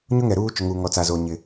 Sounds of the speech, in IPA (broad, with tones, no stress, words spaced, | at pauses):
ɲʊ˦ŋɛ˨ ɾuː˦ t͡ʃʊ˨ŋuː˨ŋɔ˨t͡sa˨ zo˨ ɲɪ˨